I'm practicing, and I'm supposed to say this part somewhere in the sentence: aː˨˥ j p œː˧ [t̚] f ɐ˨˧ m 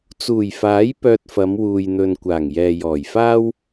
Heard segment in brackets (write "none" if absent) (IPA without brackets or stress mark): t̚